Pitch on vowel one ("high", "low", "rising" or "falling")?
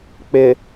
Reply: low